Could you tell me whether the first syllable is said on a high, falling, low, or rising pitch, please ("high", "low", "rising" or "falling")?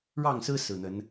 falling